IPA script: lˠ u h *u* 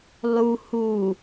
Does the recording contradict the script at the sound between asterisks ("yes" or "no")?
no